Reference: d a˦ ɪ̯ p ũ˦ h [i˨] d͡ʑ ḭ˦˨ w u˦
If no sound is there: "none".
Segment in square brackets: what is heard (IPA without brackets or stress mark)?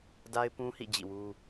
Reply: ḭ˦˨